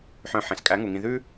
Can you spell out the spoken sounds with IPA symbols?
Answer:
ħ œ̃˧ ħ ẽ˨ s kʼ æ˨˦ ŋ u˨ ŋ ĩ˧ ð ʉ˦

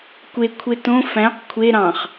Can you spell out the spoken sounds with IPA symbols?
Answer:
kʷ e kʷʰ e t õ f æ̃ q kʷʰ e ɾ ɑ̃ χ

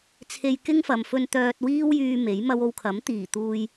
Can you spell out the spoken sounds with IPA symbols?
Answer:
t͡sʰ e˧ j k ɪ˥ ŋ f ɐ˨ m f ɵ˧ n t̪ œː˧ t̚ w iː˥ w j yː˧ m e˨˥ j m ɐ˥ w o˧ w kʰ ɐ˨˥ m t̪ iː˨˩ t̪ uː˧ j

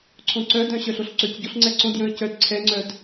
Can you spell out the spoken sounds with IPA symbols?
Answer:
ǀʰ õ ǀ œ d œ̃ ɕ œ ɬ o ɬ ǀ ø c ɟ o ɬ ŋ͡ǀ ɛ ǀ õ d j œ̃ ə̯ c œ d ǀʰ ɛ ŋ͡ǀ œ d

